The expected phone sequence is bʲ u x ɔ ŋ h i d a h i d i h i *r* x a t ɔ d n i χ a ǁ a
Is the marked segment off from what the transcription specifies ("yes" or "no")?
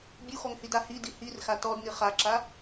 no